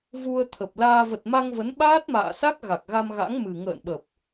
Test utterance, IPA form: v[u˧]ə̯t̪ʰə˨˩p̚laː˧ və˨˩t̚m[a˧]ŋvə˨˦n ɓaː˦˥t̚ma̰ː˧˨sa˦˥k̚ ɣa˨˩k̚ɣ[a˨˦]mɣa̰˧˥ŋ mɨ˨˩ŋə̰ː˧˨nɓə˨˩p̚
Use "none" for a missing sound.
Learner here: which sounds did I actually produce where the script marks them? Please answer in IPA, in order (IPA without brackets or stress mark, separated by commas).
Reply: u˧, a˧, a˧